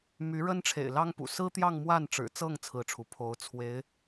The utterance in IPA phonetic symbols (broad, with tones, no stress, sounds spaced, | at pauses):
m y˧˥ ɻ ə˥ n ʈ͡ʂʰ ḛ˨˩ ɪ̯ l ɑ˥ ŋ p ṵ˨˩ s ɹ̩˥ t̪ j ɑ˥˧ ŋ m w a˥˩ n ʈ͡ʂ ɻ̩˨˩ t͡s ɤ˥˩ ŋ t͡sʰ ɹ̩˥ ʈ͡ʂʰ u˧˥ pʰ o˧˥ ʊ̯ t͡sʰ w e˧˥ ɪ̯